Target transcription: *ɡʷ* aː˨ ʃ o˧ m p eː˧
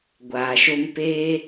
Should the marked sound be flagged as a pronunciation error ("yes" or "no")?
no